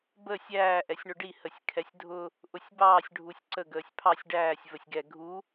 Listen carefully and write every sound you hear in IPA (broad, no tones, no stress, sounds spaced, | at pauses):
b ə sʲ æː ʔ ɛ sʲ ɳ ʊ ɖ i h ə sʲ kʰ ɛ sʲ dʱ ʊ | ʔ ʊ sʲ b ɑː sʲ ɖʱ u sʲ ǀ ə ɡ əː sʲ pʰ ɑ sʲ ɖ æː sʲ v ə sʲ ɡ ɛ ɡʱ u